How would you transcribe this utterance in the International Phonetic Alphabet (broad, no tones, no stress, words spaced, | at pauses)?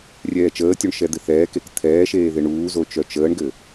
rʲɛːt͡ʃəːtʲoɳ ʃɛd̪ɪθɛːkek t̪ʰɛːʃeː ðɪɳuːzo t͡ʃœt͡ʃəːɳɡɘ